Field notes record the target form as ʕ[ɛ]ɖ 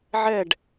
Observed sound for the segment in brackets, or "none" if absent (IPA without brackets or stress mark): ɛ